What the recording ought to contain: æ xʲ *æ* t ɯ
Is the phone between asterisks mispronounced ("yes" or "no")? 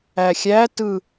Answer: no